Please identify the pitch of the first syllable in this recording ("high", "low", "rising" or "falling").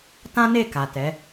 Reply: high